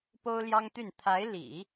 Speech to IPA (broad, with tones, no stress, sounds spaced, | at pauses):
p o˥ ʊ̯ l j ɑ˥ ŋ t̪ y˥˩ n t̪ʰ a˧˥ ɪ̯ l ḭ˨˩˦